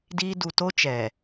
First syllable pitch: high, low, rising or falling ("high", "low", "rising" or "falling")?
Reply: high